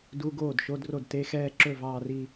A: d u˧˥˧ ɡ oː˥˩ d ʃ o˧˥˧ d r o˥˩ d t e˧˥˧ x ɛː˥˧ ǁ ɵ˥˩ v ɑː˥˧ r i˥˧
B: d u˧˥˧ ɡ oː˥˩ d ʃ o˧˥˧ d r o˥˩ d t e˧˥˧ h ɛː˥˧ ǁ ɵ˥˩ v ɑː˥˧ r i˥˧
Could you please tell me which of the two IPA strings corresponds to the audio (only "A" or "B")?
A